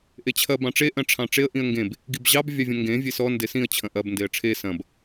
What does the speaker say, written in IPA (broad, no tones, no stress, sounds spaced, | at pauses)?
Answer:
ʔ e t͡ɕʰ ɐ b ɑ̃ ʈ͡ʂ e ʔ ɐ̃ ʈ͡ʂʰ ɑ̃ ʈ͡ʂ e ə̯ ʔ ĩ ə̯ ŋ ɡ ẽ b | ɡ i b ʑ ɑ b vʲ ɑ vʲ ɐ̃ ŋ ɡ ẽ vʲ e s ɔ n d e s ĩ ə̯ t͡ɕʰ ɐ̃ ʔ ɐ b n d e ə̯ ʈ͡ʂʰ e s ɐ̃ b